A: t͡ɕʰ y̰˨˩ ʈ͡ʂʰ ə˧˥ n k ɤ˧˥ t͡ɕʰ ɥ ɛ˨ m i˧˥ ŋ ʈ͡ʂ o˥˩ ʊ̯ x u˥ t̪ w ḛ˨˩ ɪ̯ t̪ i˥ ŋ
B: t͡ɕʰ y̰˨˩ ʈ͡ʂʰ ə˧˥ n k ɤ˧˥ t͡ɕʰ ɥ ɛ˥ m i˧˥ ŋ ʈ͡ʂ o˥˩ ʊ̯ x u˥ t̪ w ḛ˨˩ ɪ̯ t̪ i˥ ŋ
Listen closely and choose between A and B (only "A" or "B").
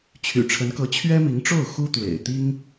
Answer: B